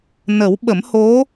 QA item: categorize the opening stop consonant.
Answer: implosive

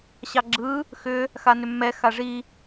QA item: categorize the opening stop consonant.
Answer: click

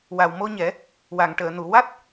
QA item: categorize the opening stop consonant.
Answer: plain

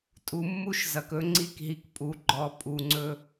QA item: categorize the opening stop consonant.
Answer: ejective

